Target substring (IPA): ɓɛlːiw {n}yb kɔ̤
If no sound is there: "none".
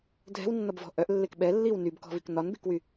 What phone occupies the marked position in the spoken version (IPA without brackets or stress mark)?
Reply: n